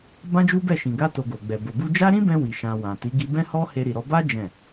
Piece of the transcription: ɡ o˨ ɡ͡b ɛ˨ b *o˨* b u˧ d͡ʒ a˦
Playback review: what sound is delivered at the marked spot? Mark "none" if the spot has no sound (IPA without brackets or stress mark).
o˨